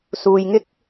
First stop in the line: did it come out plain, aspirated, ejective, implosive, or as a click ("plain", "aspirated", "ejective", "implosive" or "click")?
plain